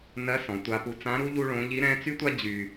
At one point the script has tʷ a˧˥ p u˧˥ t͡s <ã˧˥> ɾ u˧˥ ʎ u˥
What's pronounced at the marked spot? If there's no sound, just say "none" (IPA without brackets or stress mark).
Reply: ã˧˥